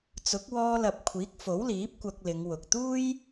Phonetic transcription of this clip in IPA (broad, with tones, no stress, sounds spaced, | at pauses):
t͡s ʊ˨˥ k̚ w ɔː˧ l ɐ˨ p̚ kʷʰ iː˨˥ k̚ f o˨˥ w l iː˨˥ p̚ kʷ ɐ˧ k̚ l ɪ˨˧ ŋ w ʊ˨ k̚ t̪ uː˥ j